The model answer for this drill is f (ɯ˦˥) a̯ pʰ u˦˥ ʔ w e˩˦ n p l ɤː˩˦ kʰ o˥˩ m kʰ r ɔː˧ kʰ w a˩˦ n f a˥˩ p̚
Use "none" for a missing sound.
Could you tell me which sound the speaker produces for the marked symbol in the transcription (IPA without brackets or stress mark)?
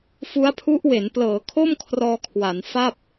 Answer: u˦˥